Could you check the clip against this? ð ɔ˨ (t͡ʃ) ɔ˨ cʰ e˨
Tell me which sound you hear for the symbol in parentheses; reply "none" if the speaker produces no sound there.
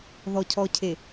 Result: cʰ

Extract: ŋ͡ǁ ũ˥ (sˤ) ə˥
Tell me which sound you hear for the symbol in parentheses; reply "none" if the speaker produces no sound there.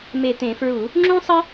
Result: sˤ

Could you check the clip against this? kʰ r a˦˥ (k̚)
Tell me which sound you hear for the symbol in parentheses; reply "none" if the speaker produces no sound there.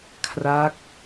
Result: k̚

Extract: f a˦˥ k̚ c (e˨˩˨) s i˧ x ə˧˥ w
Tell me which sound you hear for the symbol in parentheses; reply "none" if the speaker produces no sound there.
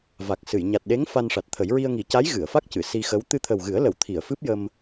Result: ɨ˨˩˨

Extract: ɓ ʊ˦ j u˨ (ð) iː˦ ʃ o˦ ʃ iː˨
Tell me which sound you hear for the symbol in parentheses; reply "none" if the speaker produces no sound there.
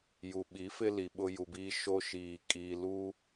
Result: b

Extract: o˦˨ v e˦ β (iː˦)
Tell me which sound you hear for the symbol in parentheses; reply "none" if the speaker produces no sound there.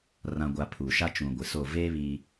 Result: i˦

